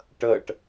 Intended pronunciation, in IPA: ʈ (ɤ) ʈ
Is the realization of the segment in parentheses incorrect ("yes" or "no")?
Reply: no